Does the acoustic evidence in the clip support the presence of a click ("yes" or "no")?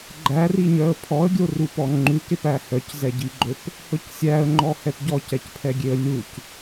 yes